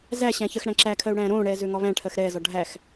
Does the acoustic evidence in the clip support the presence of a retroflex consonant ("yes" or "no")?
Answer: yes